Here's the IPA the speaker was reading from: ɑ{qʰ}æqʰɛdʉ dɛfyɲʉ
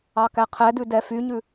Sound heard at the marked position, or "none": k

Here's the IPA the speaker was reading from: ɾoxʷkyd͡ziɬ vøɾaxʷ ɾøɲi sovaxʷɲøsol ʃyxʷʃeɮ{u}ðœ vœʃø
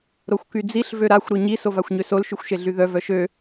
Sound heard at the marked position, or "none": y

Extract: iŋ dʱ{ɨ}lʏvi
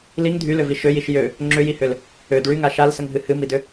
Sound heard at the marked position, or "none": y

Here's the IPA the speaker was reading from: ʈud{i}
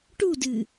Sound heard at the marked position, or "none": ɨ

